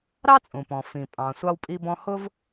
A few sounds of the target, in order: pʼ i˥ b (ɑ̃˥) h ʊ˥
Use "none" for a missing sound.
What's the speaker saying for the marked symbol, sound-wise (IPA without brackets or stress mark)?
ɔ̃˥